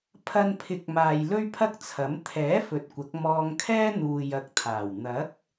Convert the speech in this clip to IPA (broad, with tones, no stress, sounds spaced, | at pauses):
pʰ ɐ˧ n pʰ ɪ˨˥ k̚ m aː˨ j l ɵ˥ ɥ pʰ ɐ˥ k̚ t͡sʰ ɐ˨˥ m t̪ʰ ɛː˨˥ f ɵ˨ t̚ kʷ ɐ˨˥ k̚ m ɔː˧ ŋ kʰ ɛː˥ n̪ uː˨ j ɐ˨ k̚ t̪ʰ aː˨˩ w n̪ ɐ˨˥ k̚